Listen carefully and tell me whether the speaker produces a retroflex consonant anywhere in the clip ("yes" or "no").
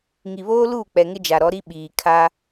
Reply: no